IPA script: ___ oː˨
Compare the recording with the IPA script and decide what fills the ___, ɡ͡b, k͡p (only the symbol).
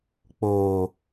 k͡p